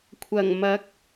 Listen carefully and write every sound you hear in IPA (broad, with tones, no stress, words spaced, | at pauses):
kʷʰɐ˨˩ŋmɐ˨˥k̚